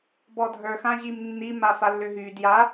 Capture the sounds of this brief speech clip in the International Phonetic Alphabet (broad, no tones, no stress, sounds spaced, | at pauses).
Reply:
b ɔ dʱ ə˞ x ã ʑ i m nː i m a f a lː ʏ ɦ y d j a